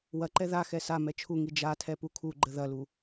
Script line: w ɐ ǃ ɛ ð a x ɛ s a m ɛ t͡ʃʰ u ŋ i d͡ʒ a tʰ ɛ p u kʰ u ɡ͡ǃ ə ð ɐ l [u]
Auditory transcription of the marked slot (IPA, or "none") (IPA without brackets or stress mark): u